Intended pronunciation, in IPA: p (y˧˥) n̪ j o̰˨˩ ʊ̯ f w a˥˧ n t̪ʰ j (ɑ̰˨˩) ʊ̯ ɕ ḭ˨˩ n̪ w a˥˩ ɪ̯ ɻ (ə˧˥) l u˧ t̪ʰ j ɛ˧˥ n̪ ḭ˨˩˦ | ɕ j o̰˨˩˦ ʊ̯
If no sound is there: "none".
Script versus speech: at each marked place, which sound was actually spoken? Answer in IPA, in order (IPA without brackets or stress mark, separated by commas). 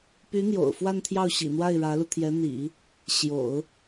y˧˥, ɑ˥˩, ä˧˥